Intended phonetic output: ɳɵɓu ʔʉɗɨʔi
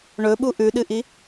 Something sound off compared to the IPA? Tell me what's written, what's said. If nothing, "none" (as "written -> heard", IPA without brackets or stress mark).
none